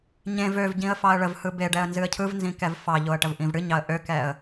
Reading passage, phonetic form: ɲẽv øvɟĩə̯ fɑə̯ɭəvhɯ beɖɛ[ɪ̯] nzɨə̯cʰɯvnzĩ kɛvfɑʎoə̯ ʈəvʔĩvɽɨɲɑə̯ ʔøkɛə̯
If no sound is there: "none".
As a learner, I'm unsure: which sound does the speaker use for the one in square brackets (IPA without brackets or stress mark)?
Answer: ə̯